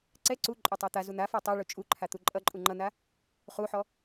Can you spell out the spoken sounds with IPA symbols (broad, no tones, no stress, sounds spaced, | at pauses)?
ǀ ɛ ǀ u ǃʼ o tˤ æ t̪ a z u n̪ a f ɔ tˤ o ɭ u t͡ʃʼ u ǃʰ a t̪ u ǃʼ ʌ ǃʼ u ŋ͡ǃ ʌ n̪ a | χ u ħ ɔ